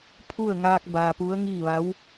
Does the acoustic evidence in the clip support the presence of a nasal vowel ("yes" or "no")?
no